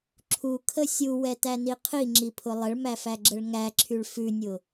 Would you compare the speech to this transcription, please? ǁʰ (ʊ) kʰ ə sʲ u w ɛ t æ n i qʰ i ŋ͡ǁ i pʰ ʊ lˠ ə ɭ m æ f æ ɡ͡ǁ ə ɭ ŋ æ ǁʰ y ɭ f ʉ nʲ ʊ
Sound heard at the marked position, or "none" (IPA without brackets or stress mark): u